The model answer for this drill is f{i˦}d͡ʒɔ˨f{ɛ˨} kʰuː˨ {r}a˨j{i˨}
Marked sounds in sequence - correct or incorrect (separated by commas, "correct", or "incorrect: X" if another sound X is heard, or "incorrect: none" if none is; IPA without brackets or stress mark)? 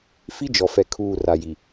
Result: correct, correct, correct, correct